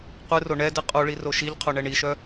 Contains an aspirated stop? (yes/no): yes